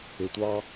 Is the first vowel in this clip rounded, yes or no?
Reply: no